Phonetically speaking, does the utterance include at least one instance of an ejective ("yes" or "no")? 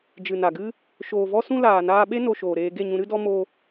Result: no